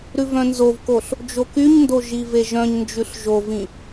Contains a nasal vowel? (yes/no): yes